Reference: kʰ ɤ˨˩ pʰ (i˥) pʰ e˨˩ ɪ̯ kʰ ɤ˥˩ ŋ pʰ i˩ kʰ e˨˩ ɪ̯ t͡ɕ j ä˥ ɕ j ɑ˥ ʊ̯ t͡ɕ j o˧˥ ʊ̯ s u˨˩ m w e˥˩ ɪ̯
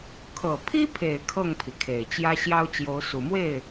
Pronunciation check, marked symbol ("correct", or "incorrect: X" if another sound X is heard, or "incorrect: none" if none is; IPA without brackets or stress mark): correct